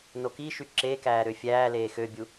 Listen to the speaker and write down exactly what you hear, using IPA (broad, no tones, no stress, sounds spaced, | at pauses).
n o k i ʃ y ǁ e k æː ɾ ø fʲ æː l eː x ø bʲ u